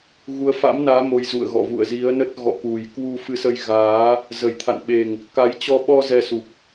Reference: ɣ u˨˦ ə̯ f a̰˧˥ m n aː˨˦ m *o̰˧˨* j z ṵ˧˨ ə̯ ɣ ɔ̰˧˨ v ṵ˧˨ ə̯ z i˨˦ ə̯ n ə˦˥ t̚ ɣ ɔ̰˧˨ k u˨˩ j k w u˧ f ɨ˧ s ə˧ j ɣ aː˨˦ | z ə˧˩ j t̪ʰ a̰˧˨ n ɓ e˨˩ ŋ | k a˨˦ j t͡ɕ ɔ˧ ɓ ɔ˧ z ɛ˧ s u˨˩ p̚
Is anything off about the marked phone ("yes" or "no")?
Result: yes